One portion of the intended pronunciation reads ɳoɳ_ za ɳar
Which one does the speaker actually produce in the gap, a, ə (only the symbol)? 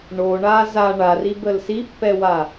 a